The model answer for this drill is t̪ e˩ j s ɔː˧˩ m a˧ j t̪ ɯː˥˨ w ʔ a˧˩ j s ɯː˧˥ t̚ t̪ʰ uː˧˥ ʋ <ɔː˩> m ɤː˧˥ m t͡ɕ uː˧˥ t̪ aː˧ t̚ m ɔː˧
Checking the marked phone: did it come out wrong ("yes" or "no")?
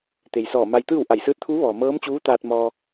no